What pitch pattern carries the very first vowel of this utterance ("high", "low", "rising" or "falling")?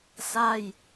falling